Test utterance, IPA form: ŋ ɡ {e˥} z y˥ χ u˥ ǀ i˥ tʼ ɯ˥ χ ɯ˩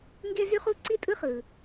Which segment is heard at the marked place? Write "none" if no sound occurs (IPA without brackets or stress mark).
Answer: e˥